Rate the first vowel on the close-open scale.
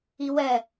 close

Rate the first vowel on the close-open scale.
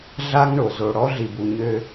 open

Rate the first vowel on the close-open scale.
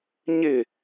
close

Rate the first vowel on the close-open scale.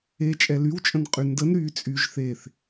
mid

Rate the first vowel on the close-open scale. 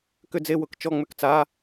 close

